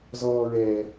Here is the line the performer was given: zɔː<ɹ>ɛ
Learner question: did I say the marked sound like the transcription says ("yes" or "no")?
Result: yes